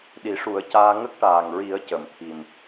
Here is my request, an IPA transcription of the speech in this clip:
ɗ i˨˩˦ ʂ u˨˩˦ ə̯ c aː˧ ŋ ə˦˥ k̚ ʈ aː˨˩ ŋ ɹ i˨˩˦ ə̯ c ə˨˩˨ m t̪ʰ i˨˩ m

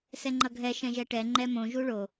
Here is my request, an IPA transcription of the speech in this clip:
s ɛ ŋ͡ǃ ʌ ɡʱ ɛ ʃ ɛ̃ ʒ ɛ ʈ ɛ ŋ͡ǃ ɛ m õ ʒ u ɭ o

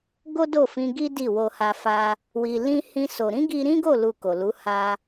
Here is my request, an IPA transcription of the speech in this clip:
ɡ o˦ d o˦˨ f ĩ˧ ɡ i˦ d i˦˨ w o˧ h a˧ f a˧ | w i˧ l ĩ˦ h ĩ˦ s o˧ ɾ ĩ˦ ɡ i˧ ɾ ĩ˦ ɡ o˦˨ l u˧ k o˨ l u˨˦ h a˧

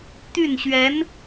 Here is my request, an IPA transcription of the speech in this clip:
t̪ y˥˩ n ɕ ɥ ɛ˧˥ n

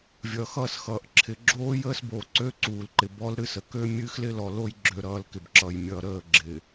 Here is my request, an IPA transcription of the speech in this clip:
vʲ ʌː˨ x ʌː˦˨ s x ʌː˨ ʔ ǁʰ ɪ˨ ɡ͡ǁ oː˦ j əː˦ s b oː˨ ǀ ø˦ ǀ uː˨ l ǃ ɪ˨ b ɔ˦ l ɾ ɨ˦˨ s ə˨ k øː˦ mʲ ɨː˦ x l ɪ˦ l ɔ˨ l o˦ j ɡ͡ǁ ø˨ ɾ ʌː˨ l k ɪ˨ b ǁ ʌː˨ j mʲ ʌː˨ ɾ əː˦˨ ɡ͡ǁ ɪ˨

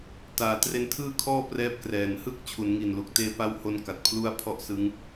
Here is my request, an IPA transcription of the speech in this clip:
t aː˨˩ t r e˧ n tʰ ɯː˥˩ kʰ ɔː˥˩ p r ɛː˦˥ p̚ k r ɛː˨˩ n h ɯ˥˩ k̚ t͡ɕʰ u˩˦ n ŋ i˨˩ n l u˨˩ k̚ t eː˧ p a˦˥ w h o˧ n k a˨˩ t̚ pʰ l u˥˩ a̯ pʰ ɔ˥˩ ʔ s ɯ˦˥ ŋ

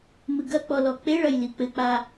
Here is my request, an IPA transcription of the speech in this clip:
m ɨ ɡ ɐ k͡p ɔ l ɔ k͡p e ɭ ɐ j l i k͡p ɘ k͡p a

